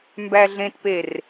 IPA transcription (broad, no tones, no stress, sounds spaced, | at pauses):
m b æ ɮ ẽ t p e r